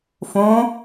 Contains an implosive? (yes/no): no